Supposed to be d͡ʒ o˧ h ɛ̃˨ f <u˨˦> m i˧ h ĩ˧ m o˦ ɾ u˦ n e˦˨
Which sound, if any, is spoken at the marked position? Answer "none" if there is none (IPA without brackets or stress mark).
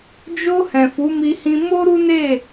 u˨˦